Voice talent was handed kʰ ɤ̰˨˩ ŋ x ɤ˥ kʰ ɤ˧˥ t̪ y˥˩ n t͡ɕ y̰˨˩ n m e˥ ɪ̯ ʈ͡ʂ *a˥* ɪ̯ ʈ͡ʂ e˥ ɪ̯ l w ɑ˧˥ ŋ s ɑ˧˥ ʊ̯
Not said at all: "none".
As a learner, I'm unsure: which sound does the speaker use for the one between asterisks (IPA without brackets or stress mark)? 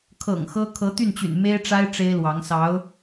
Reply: a˥